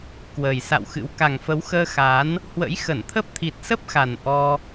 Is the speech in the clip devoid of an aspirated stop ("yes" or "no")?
no